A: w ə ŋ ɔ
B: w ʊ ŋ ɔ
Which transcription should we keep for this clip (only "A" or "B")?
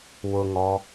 B